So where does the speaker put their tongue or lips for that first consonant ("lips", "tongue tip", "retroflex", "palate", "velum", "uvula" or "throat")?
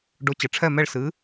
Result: retroflex